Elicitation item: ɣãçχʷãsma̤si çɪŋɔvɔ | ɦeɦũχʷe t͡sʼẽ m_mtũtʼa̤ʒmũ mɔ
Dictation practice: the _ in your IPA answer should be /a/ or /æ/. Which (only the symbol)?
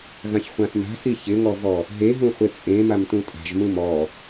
a